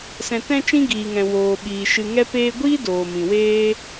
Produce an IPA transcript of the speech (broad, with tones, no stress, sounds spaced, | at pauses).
s ɛ̃˨ t ɛ̃˧ t͡ʃ ĩ˦ ɡ iː˨ ŋ ɛ̃˨ w oː˨ ɓ iː˨ ʃ ɨ˨ ŋ ɛ˧ p eː˧ ɡʷ iː˦ d oː˨ m ĩ˨ w eː˦